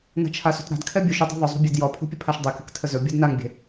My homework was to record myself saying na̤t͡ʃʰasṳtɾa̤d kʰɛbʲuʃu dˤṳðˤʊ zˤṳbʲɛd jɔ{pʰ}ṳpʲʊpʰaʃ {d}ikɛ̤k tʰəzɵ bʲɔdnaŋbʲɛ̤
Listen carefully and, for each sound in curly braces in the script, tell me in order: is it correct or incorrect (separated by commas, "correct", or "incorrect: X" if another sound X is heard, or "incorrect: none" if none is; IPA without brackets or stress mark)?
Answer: correct, incorrect: dˤ